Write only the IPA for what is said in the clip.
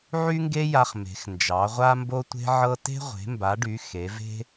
ʕ y˥ ŋ ɡ e˥ j a˥ χ m e̤˨˦ x n d͡ʒ ɑ˨˦ ʁʷ a˥ m b o˥ tʷ e̤˥ ʕ ɤ˥ t e̤˥ ʁʷ e̤˨˦ m b a˨˦ ɖ y˨˦ x e˨˦ v e̤˥

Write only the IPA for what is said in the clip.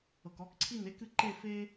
ɤ˩ k ɔ˨˦ k ǀʰ i˥˨ n e˥ k ɨ˥˨ ǃ e˥˨ f e˥

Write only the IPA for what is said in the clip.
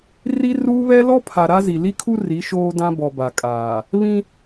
r i˦ r uː˦ β ɛ˦ l ɔ˦ pʰ a˨ ɾ a˦ z i˨ l i˦ kʰ u˦ r i˨˦ ʃ oː˦ d ã˦ b ɔ˨ b a˨ kʼ aː˨ | β ĩ˦

